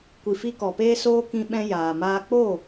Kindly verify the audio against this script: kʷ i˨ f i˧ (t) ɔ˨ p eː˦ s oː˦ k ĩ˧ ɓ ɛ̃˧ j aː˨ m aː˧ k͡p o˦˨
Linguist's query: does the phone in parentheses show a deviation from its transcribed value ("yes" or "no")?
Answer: yes